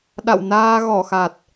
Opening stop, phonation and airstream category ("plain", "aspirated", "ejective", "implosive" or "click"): implosive